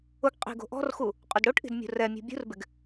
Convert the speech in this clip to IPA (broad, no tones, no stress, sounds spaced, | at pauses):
ʊ ɡ qʼ i̤ ɡ o̤ ʔ ɔ̤ r x u | qʼ ʊ d ɽ o ʈ ʔ i̤ d mʲ ṳ r ɛ mʲ ṳ bʲ ṳ r b ɪ ɡ